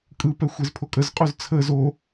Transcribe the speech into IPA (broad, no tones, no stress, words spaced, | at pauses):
kʼɯpɛ xʷezpʰokʼəzqʼoz t͡sʰəːz o